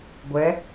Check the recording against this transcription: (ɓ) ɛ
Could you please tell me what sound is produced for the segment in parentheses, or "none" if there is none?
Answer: ɡʷ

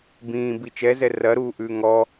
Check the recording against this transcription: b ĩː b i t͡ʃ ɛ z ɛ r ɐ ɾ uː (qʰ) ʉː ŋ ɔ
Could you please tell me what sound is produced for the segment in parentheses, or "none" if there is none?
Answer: ʔ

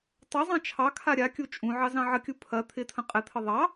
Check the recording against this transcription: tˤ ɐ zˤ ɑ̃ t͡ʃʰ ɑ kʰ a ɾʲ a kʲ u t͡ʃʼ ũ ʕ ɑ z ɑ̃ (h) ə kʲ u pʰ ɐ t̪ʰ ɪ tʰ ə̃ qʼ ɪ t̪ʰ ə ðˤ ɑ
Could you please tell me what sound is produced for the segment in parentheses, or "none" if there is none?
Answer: ʕ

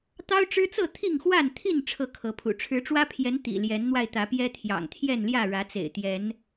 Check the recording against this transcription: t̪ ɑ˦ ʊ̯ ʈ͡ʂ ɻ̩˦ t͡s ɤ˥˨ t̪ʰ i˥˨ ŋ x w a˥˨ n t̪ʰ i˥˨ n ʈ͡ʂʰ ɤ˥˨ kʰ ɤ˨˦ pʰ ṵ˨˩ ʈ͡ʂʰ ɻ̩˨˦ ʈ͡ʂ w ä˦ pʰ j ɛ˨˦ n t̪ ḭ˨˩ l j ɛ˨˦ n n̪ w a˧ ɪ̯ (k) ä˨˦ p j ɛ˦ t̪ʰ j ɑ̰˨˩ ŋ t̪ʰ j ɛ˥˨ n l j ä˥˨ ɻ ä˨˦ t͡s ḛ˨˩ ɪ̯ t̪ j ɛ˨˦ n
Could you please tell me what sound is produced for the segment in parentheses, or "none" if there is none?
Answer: t̪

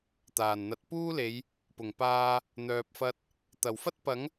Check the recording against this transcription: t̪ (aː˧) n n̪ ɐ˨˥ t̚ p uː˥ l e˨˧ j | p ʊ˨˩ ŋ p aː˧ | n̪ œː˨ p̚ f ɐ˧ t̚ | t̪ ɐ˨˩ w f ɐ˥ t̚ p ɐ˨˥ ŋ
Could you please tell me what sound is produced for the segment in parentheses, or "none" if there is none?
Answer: aː˨˩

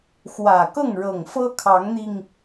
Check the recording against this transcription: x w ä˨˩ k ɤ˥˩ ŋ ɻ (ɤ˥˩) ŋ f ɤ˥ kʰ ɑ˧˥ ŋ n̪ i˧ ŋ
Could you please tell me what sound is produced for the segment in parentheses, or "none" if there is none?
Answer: ɤ˨˩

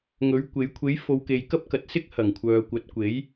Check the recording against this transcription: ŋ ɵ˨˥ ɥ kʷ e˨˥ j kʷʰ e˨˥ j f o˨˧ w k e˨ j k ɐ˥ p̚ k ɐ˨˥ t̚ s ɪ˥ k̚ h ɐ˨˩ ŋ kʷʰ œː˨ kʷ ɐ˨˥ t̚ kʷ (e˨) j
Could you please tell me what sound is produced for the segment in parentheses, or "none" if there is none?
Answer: e˨˥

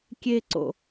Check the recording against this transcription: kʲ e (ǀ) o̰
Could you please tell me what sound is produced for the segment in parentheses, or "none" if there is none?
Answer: ǀ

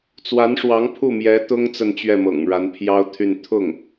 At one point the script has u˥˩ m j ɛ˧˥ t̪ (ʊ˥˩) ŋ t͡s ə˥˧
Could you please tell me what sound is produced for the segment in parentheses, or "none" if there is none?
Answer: ʊ˥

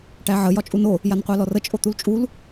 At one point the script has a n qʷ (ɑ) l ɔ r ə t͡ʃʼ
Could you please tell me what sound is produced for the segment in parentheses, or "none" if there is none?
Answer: ɑ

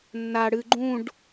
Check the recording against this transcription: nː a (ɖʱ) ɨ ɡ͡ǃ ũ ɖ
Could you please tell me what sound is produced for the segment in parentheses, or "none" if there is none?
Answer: ɽ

